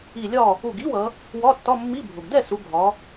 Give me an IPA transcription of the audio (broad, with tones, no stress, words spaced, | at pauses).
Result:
i˧˩lʲɒ˥˨ | u˧˩ɡi˧˥˧wʌ˩˧ | wɒ˧˥˧tːɒ˧˥˧mːi˧˥˧bʱʊ˩ɡ dɛ˥˨su˩˧ ɡʱɒ˩˧